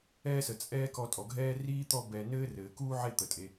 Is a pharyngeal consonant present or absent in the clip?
present